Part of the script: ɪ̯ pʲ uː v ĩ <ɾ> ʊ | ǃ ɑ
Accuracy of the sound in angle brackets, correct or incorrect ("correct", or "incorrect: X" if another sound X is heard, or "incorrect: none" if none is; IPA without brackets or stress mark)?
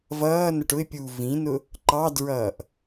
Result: incorrect: n